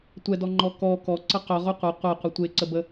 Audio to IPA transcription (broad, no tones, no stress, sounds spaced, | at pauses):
tʷ ɛ d ɔ ŋ͡ǃ ɔ k ɔ k ɔ ǀ ə q œ ʁ o qʷ ɛ qʷ e qʷ ə tʷ e ǀ ə b ə